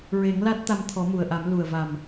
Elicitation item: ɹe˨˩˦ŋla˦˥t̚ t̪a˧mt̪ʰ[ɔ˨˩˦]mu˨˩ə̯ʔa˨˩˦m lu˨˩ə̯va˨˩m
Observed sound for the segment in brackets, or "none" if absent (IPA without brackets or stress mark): ɔ˨˩˦